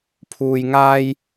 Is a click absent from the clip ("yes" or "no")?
yes